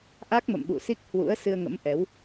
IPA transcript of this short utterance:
ʔ a˦˥ k̚ m ə̰˧˨ m ɓ ṵ˧˨ s i˦˥ k̚ h w ṵ˧˥ ə̯ s ɨ˧ ə̯ ŋ ə̰˧˥ m ʔ ɛ˨˦ w

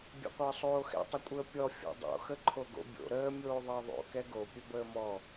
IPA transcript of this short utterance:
bʲ ɛ̰ qʷ əː sˤ oː x ɛ̰ tˤ ə kʷʼ əː pʲ ɔ fʲ o̰ dˤ o̰ x ə ǃʰ o ɡ o̰ bʲ o̰ ɾ əː mʲ oː ðˤ əː ðˤ o̰ k ɛ ɡ o pʲ ɵ b əː m ɔ

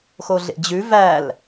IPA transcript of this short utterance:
x o ɮ ḛ d͡ʑ ʉ v æ l

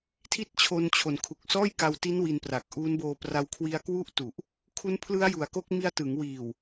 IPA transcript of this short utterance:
tʰ i˥˩ t̚ t͡ɕʰ o˧ n t͡ɕʰ o˨˩ n kʰ u˨˩ k̚ s ɔː˥˩ j k a˧ w t i˦˥ n w i˧ n p r a˨˩ k̚ ʔ uː˦˥ n b oː˧ p r a˧ w kʰ w i˦˥ a̯ k w u˥˩ ʔ t u˨˩ ʔ | kʰ u˦˥ n pʰ l ɯ˦˥ a̯ j u˩˦ a̯ k o˦˥ k̚ m i˧ a̯ t ɯ˩˦ ŋ w iː˨˩ w

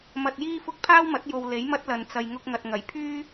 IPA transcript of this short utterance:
m ɐ˧ t̚ j iː˥ f ʊ˥ k̚ pʰ aː˥ w m ɐ˨˥ t̚ j o˨ w l e˨˥ j m ɐ˥ t̚ l ɐ˨ n t͡s ɐ˨ j ŋ ʊ˧ k̚ ŋ ɐ˨ t̚ ŋ ɐ˨˩ j pʰ yː˥

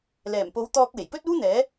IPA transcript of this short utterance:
l ɛː˨˩ m p o˨˥ w t̪ ɔː˧ k̚ w e˨˩ j p ɵ˥ t̚ uː˥ n̪ ɛː˨˥

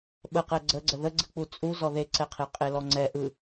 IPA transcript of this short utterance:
ɓ ə q ɛ ɡ͡ǀ ə ɡ͡ǀ ə ð ə ɡ͡ǀ ɯ k͡p u t͡sʼ u z ɔ ð e ǀ ɛ qʰ e qʼ e l ɔ ŋ͡ǀ ɛ ʔ ɯ

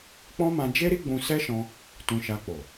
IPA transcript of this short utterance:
k͡p ɔ̃˦ m ã˧ d͡ʒ e˦ ɾ i˦ ɡ͡b ũ˧ s ɛ˦ ʃ ɔ̃˧ | t ũ˧ ʃ a˧ k͡p o˨

